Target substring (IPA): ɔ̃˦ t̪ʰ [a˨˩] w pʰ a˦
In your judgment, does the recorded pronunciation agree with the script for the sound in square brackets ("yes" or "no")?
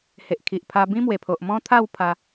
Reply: no